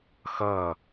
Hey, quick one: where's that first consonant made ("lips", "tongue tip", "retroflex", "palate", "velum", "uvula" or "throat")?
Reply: velum